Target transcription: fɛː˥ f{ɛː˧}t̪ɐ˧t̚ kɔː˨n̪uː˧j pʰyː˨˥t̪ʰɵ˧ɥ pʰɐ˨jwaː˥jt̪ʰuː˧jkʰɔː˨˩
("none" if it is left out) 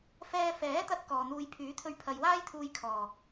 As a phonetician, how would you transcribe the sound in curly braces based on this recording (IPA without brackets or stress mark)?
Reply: ɛː˨˥